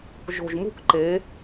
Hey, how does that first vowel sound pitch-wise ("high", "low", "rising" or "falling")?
low